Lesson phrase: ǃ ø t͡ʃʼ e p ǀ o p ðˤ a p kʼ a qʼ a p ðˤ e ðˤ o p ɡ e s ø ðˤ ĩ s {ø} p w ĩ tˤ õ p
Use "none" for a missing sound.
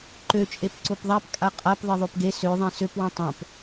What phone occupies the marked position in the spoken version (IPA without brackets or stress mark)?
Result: ø